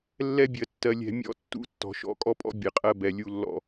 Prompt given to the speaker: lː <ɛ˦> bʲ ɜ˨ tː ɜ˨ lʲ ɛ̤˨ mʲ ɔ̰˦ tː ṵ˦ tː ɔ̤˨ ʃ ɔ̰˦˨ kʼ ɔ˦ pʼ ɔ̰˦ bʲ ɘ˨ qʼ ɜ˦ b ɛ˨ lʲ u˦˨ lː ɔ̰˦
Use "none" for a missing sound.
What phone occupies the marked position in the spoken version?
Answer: ɛ˦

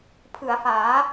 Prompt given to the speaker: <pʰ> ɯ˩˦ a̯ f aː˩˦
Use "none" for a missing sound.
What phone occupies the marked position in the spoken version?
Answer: pʰ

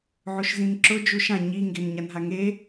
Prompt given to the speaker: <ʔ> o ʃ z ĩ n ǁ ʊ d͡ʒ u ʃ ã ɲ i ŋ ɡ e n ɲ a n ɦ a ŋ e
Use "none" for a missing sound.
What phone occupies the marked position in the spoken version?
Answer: ʕ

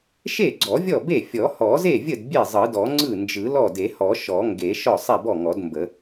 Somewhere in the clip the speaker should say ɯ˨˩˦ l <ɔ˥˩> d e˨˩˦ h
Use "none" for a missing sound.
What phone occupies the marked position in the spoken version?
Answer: ɔ˥˩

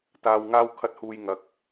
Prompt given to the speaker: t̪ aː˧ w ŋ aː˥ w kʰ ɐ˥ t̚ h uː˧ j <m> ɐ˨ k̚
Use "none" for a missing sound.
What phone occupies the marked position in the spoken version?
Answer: ŋ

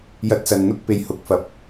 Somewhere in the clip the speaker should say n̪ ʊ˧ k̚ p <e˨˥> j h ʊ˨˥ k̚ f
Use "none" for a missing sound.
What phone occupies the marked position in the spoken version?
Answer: e˨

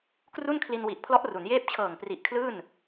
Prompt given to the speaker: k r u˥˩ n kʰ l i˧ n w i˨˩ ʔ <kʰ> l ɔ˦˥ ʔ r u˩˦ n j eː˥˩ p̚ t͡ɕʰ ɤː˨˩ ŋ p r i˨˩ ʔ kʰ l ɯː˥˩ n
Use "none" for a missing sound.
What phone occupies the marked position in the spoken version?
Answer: pʰ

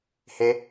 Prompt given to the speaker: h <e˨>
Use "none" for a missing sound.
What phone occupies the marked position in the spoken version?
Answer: e˦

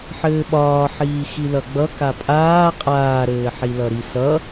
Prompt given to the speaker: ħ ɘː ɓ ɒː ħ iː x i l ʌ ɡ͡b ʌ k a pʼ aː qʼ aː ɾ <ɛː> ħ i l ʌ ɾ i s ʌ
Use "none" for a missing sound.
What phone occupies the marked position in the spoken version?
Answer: ɘː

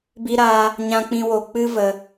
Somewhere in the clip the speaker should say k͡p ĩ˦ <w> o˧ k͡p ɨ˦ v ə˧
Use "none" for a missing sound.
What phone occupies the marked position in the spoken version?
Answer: w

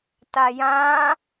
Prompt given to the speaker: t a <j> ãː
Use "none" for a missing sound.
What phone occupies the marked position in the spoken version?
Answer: j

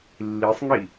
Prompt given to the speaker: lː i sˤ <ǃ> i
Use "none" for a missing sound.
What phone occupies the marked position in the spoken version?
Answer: ŋ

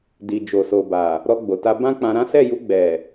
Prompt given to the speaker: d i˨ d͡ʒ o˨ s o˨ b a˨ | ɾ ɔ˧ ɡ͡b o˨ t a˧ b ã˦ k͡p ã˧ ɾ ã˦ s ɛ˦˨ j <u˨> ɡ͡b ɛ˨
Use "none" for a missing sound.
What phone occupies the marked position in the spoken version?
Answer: u˧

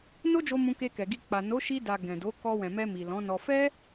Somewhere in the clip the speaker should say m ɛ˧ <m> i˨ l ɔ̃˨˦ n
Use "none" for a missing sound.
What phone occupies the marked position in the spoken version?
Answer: m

